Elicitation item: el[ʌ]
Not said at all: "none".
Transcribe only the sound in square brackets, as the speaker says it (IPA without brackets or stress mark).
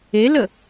ə